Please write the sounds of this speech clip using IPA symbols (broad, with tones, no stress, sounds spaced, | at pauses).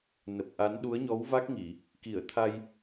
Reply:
n ə˨˩ p̚ ʔ a˨˦ n ɗ u˨˦ ə̯ ɲ ɔ˨˦ w v a˦˥ k̚ ŋ i˧˩˨ | k i˧˩ ə̯ t̪ʰ a˧ j